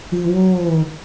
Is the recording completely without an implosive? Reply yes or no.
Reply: yes